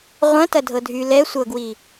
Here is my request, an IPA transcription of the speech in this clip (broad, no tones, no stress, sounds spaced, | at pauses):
ʁʷ ɐ̃ t ɐ dʱ ɤ dʱ y l ɛ sʷ ɤ ɡ w i